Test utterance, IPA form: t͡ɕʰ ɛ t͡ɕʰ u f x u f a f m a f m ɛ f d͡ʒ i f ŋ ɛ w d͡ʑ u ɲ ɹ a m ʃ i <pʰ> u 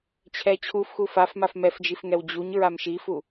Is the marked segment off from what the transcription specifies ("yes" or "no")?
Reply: yes